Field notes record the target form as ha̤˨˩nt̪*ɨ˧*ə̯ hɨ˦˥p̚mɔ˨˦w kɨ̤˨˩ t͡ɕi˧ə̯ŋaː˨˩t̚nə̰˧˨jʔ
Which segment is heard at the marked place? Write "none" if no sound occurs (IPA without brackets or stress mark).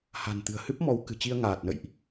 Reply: ɨ̤˨˩